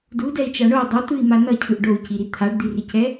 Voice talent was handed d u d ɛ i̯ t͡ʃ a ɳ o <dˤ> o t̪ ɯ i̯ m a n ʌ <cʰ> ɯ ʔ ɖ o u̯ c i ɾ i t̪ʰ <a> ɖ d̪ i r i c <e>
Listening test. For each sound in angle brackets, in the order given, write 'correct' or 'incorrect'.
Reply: correct, correct, correct, incorrect: ɛ

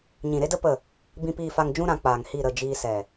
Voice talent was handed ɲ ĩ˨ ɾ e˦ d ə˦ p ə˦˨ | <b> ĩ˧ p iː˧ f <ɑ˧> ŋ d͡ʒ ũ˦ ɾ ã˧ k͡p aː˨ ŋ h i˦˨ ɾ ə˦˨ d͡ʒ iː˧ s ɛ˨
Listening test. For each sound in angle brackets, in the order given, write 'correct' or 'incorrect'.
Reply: correct, incorrect: a˧

